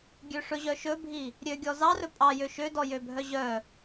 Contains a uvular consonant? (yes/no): no